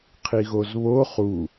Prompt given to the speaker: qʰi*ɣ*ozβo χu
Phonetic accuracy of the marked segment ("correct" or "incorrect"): correct